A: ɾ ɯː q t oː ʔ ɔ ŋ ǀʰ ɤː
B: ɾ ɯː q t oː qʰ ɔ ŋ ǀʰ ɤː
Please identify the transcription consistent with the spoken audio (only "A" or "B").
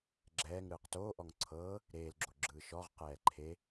A